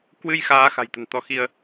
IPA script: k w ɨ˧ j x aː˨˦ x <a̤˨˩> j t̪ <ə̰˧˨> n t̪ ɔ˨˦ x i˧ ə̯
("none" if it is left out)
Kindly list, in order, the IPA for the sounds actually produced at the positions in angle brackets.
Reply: a̤˨˩, ə̤˨˩

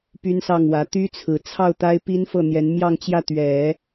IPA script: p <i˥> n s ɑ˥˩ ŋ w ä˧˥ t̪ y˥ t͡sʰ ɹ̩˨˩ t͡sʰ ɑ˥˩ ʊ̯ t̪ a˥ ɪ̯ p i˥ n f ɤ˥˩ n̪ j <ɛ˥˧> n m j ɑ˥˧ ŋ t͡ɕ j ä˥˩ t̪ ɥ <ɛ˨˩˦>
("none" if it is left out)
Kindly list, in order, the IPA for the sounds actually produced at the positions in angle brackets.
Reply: y˥, ɛ˧˥, ɛ˨˩˦

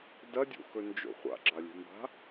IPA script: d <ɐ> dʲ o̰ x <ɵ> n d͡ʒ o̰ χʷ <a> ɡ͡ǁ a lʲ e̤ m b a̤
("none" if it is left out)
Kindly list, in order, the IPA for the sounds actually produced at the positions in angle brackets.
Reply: ɐ, ɵ, a̰

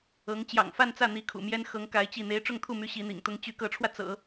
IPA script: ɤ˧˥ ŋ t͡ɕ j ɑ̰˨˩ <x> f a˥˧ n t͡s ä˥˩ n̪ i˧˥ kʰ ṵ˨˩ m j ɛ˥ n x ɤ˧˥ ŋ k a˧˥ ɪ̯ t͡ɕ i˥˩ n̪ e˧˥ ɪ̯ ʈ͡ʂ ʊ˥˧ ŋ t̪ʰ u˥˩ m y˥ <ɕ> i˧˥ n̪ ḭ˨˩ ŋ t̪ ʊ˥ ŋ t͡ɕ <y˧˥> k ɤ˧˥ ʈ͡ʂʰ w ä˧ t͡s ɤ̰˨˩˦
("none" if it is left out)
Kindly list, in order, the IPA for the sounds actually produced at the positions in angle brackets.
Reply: ŋ, ɕ, y˧˥

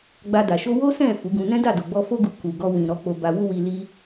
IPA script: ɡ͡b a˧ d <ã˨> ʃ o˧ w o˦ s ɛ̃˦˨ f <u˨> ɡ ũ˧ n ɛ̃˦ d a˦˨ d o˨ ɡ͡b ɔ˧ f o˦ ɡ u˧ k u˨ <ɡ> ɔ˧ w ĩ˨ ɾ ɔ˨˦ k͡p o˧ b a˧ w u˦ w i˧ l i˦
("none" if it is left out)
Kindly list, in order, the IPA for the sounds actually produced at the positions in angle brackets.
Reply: a˨, u˨˦, ɡ

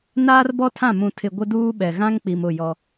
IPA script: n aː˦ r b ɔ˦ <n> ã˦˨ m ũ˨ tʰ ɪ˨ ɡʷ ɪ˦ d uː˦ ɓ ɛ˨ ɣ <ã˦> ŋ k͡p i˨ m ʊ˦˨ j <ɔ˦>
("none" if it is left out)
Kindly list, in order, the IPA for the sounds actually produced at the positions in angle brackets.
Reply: tʰ, ã˦, ɔ˦

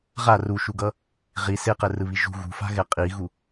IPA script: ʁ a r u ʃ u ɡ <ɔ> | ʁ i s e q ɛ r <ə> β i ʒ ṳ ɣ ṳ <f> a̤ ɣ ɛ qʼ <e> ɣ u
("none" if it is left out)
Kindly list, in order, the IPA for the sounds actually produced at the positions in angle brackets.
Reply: ʌ, ɯ, f, i

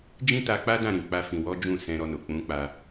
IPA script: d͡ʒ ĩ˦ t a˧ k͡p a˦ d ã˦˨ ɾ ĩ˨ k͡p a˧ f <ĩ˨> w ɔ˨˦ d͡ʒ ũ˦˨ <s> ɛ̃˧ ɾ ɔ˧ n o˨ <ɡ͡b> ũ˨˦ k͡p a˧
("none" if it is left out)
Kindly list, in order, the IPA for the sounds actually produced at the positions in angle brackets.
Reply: ĩ˨, s, k͡p

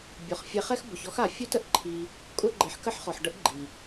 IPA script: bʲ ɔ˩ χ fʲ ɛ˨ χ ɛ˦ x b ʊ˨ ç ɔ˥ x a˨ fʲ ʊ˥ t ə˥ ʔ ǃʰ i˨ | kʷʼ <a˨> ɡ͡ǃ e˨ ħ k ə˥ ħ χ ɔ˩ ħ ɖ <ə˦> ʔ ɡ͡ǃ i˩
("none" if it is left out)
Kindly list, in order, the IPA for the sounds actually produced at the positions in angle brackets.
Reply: a˥, ə˦

